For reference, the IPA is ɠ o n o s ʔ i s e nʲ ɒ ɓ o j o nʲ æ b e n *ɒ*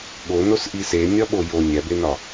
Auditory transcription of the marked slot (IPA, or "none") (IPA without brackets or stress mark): ɒ